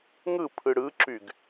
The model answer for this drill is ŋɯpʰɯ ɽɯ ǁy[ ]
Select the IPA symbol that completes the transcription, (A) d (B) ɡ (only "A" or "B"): B